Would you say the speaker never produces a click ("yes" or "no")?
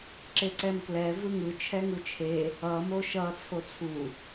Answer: no